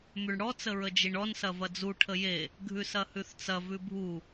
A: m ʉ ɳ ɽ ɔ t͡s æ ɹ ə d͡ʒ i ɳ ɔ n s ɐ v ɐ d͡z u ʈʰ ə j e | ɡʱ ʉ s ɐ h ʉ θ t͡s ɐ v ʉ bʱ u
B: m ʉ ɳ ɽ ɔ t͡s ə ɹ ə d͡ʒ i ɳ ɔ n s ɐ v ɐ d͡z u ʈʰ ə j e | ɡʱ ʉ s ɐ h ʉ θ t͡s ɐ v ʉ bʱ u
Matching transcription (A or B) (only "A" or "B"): B